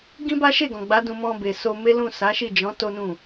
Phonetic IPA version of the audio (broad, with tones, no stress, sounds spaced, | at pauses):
ɡ ĩ˦ b a˦ ʃ e˦˨ ɡ ɔ̃˨ ɡ͡b a˨˦ d ũ˧ m ɔ̃˧ b e˨ s o˧ m e˦ l ũ˦˨ s a˨˦ ʃ i˦˨ d͡ʒ ɔ̃˨˦ t o˦ n ũ˦˨